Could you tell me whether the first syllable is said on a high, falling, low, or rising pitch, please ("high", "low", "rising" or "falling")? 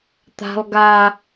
high